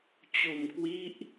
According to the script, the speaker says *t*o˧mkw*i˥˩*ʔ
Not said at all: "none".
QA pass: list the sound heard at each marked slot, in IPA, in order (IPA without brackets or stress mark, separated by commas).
t͡ɕ, i˦˥